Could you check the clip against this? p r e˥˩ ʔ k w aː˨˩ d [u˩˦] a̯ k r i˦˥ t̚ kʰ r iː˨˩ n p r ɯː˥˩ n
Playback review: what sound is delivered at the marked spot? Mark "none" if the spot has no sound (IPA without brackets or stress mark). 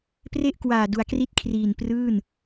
u˩˦